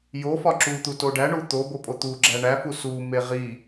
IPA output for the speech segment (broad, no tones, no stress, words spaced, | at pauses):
jo fɒǁut̪u toɖæɳu t̪obo pʼot̪uɡ͡ǁæ ɳæfu sume ʁi